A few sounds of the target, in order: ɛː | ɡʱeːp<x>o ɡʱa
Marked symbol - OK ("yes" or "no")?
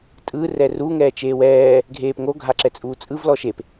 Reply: no